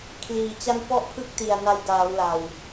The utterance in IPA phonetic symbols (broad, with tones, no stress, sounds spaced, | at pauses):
kʰ l iː˨˩ t͡ɕ a˥˩ n p ɔ˥˩ ʔ pʰ ɯ˥˩ k̚ t i˨˩ a̯ n a˧ j d aː˩˦ w l a˨˩ w